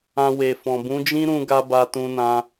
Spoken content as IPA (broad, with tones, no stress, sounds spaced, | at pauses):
ã˧ w e˨ f ɔ̃˨ b ũ˨˦ d͡ʒ ĩ˦ ɾ ũ˦ ɡ a˦ b a˧ t ũ˧ n ã˧